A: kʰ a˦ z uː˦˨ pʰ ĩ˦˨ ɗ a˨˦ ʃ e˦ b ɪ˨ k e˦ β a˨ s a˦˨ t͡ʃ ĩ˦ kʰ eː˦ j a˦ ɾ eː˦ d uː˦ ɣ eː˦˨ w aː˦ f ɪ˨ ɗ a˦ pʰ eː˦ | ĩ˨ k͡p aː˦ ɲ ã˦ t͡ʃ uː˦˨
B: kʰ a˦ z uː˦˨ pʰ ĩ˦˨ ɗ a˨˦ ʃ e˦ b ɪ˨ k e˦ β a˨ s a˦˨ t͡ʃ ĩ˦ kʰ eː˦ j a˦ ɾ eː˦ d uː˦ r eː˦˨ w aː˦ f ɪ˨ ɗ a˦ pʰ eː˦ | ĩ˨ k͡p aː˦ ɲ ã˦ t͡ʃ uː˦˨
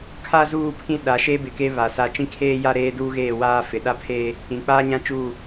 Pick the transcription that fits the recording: A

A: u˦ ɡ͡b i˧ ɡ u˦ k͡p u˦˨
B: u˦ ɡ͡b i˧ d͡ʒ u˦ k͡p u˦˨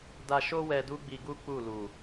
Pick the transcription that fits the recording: A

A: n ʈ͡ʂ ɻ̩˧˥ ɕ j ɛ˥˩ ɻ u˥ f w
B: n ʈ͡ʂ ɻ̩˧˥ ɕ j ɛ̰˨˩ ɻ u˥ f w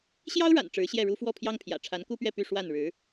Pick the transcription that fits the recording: A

